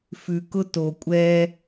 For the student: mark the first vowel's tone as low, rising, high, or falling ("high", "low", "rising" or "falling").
low